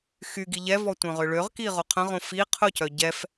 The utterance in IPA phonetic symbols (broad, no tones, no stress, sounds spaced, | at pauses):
x y ɡ i ʎ ɛ v ɔ tʷ œ̃ ʁ ʏ ɭ ø ʁ k i ʁ o qʰ ə̃ ʁ õ f i qʰ ʊ c œ ɟ ɛ f